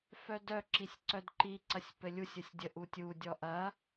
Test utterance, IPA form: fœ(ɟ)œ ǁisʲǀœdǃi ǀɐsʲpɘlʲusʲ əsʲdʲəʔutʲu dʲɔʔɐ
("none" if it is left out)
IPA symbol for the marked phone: d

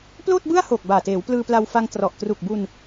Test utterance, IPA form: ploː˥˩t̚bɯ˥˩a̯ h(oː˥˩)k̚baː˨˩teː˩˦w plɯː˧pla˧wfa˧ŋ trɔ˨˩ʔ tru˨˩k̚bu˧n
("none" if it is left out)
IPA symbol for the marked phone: oː˨˩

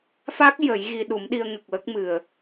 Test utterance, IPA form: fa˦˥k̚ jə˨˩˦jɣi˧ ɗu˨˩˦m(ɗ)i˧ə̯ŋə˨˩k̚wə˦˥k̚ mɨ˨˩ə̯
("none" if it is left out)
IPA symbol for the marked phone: ɗ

